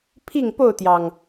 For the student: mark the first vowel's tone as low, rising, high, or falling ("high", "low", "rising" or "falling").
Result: falling